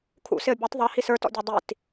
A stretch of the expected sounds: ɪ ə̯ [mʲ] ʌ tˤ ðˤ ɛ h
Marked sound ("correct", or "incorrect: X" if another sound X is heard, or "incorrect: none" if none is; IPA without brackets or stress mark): incorrect: bʲ